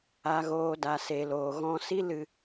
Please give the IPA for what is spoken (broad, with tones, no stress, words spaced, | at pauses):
a˨ɣoː˨ da˨se˨loː˨ ɣɔ̃˧ si˦lɨ˧